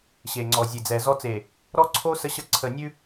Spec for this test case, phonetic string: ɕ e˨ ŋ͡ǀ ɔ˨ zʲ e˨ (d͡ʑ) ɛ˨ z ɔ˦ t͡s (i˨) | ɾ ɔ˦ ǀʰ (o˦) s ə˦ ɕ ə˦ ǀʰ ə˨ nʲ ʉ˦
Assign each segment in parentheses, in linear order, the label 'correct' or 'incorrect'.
incorrect, incorrect, correct

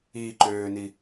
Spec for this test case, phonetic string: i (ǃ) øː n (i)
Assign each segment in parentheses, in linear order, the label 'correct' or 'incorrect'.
correct, correct

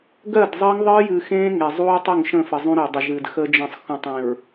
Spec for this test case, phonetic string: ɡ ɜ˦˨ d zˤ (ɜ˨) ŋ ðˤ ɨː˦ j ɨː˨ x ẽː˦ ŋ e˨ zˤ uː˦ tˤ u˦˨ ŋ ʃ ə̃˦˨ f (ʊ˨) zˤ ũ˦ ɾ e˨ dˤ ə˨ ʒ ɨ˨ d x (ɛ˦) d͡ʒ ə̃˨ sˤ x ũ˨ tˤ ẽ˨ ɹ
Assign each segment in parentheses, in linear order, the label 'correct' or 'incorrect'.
incorrect, incorrect, incorrect

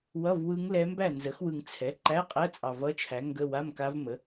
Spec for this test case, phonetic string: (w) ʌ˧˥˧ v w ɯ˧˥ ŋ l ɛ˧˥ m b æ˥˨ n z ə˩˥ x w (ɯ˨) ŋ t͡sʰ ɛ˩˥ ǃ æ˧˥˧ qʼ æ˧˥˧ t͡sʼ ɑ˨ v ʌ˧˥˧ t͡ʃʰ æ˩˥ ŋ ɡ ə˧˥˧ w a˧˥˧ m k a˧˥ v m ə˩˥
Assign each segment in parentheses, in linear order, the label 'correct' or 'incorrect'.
correct, correct

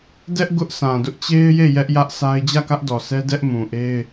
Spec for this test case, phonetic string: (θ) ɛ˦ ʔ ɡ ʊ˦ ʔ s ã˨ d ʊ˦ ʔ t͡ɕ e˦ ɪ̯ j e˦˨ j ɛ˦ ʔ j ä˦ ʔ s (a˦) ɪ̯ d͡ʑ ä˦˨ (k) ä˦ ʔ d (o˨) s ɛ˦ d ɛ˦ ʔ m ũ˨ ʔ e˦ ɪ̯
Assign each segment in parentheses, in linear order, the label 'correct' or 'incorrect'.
incorrect, correct, correct, incorrect

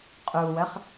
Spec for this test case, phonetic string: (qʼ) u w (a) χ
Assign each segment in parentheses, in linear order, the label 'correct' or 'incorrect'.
correct, incorrect

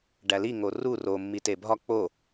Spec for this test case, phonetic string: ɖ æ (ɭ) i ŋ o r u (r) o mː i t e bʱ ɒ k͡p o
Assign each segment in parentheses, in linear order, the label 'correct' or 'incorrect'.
incorrect, correct

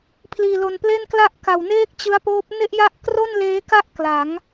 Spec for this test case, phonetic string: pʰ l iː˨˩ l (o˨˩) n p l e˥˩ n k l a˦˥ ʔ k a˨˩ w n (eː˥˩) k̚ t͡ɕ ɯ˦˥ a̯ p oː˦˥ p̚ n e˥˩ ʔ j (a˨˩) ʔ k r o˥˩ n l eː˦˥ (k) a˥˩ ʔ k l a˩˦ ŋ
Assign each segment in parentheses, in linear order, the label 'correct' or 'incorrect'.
correct, correct, incorrect, correct

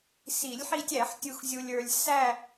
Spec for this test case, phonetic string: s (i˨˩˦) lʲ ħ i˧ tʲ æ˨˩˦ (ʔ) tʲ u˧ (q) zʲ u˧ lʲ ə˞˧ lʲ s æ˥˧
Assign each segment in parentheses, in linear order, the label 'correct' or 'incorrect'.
correct, incorrect, incorrect

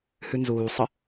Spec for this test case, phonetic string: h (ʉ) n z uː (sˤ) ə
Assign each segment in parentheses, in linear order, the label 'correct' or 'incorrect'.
correct, correct

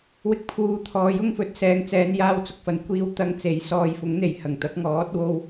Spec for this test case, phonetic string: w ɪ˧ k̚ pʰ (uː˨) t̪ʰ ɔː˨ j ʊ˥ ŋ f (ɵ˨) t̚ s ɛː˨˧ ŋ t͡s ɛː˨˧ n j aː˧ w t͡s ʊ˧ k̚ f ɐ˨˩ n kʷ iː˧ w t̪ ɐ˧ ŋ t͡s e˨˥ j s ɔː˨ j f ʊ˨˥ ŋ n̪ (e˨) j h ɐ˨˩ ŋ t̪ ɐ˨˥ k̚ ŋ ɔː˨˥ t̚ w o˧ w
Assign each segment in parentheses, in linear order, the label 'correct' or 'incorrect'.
correct, incorrect, correct

